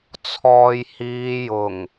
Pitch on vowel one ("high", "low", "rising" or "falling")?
low